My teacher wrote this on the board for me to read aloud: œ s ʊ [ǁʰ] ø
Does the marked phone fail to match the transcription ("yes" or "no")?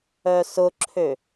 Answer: no